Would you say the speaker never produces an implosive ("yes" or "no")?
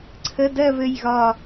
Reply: yes